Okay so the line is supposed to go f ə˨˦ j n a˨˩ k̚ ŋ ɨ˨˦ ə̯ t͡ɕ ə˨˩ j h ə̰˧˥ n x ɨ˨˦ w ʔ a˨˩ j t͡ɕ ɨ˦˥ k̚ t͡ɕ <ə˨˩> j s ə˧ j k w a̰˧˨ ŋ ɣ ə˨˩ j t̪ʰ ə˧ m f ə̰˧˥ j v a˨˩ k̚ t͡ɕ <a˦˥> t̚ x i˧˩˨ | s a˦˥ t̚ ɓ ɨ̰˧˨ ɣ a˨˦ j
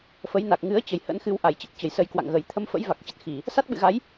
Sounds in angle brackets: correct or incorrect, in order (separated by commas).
correct, incorrect